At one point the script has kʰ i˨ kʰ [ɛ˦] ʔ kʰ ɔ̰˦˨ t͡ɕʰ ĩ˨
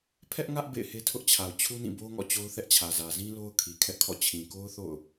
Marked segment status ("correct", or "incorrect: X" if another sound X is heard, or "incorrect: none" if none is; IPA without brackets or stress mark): correct